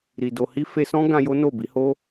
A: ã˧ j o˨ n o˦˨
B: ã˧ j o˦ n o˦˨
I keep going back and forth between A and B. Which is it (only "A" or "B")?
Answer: B